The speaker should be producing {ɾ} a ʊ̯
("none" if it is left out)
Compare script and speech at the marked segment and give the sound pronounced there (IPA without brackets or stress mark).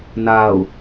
n